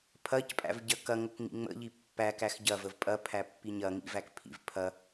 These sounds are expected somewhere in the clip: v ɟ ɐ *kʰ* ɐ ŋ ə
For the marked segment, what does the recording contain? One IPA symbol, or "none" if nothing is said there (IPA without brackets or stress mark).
k